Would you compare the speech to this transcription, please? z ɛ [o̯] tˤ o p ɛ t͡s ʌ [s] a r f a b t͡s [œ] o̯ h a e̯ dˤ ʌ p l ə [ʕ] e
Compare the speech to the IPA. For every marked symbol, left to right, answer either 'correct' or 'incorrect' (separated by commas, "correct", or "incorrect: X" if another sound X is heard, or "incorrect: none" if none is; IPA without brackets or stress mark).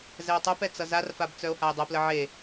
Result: correct, incorrect: z, correct, correct